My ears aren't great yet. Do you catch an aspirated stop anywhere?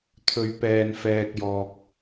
yes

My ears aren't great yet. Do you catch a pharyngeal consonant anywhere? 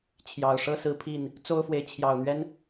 no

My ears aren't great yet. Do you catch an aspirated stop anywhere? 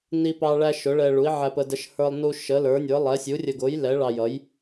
no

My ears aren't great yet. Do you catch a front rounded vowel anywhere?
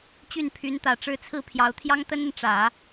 yes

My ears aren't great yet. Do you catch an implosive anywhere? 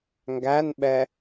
yes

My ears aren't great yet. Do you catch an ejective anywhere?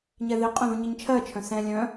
yes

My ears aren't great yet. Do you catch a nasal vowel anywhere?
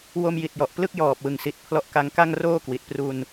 no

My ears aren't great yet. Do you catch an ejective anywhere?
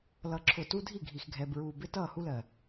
no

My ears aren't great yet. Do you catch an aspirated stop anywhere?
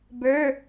no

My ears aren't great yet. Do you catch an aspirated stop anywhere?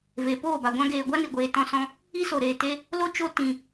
no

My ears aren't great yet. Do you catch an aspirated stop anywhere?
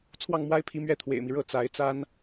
yes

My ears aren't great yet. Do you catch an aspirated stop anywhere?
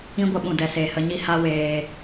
no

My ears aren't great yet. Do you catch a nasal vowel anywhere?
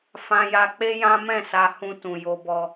yes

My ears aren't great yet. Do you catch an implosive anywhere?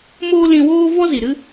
no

